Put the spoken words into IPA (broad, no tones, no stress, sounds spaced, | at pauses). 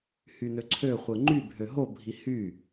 h y n ø ǀʰ ø χʷ ɯ ŋ͡ǃ y bʱ ø ɦ o bʱ i h y